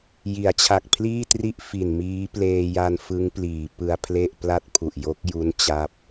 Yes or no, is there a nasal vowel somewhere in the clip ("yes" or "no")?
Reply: no